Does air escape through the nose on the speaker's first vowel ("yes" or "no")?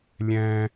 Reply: yes